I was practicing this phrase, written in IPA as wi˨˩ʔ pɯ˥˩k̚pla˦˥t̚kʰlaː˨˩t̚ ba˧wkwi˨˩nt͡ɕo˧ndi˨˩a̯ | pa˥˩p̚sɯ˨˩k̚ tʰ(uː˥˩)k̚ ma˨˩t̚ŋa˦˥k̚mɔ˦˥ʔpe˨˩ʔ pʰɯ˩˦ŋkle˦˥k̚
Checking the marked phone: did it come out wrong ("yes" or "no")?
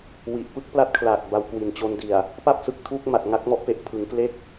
yes